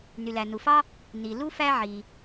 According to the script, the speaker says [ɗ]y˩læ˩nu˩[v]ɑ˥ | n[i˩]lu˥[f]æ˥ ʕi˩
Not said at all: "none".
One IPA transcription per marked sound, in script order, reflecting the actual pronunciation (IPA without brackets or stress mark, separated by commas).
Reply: n, f, i˩, f